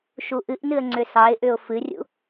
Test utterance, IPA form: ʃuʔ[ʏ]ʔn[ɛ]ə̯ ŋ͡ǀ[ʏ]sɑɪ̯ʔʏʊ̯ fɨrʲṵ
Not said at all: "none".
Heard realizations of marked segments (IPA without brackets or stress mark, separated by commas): ɨ, ɨ, ʏ